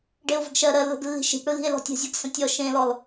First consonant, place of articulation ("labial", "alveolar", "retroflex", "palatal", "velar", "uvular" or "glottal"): retroflex